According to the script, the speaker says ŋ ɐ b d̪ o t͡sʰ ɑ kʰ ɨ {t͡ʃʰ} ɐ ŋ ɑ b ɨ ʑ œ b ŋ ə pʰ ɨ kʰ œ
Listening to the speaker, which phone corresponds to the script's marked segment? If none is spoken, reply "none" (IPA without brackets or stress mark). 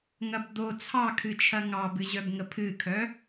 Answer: t͡ʃʰ